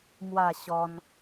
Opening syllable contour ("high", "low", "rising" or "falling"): falling